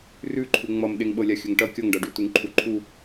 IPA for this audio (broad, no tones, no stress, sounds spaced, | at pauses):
r ʉ ǃʰ u ŋ͡m ʌ m ɗ e ŋ ɓ ɤ lʲ a xʲ ɵ ŋ ʈ ʌ kʲ ʌ ŋ ɖ ʌ ɖ ʉ t u ŋ ǃʰ u ǃʰ u